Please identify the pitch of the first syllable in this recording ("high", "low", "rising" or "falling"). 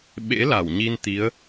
rising